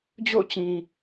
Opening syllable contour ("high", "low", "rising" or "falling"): falling